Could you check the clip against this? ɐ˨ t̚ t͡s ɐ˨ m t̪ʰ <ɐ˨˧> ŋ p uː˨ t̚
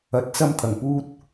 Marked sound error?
yes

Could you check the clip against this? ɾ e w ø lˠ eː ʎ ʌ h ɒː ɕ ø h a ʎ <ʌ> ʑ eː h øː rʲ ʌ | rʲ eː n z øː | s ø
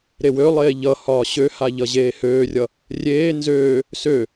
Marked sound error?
no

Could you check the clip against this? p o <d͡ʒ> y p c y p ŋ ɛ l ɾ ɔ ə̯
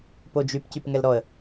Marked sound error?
no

